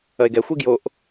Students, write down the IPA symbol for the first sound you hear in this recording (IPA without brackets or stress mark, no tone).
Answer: ɐ